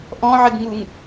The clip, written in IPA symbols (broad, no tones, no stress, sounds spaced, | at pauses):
ʔ ɔ̃ ʕ ɪ ɡ ŋ u ŋ